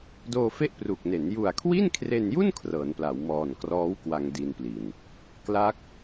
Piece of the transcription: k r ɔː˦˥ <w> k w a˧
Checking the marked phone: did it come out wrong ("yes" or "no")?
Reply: no